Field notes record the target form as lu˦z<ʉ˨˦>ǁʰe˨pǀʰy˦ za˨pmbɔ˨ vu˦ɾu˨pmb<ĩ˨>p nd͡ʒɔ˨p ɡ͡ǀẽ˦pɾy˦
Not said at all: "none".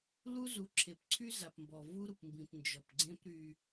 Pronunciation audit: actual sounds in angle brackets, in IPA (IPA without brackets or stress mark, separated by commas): u˨˦, ĩ˨